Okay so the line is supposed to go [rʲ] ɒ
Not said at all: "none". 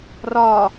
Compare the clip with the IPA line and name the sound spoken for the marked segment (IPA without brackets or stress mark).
r